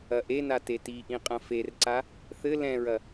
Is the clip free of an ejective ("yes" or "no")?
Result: no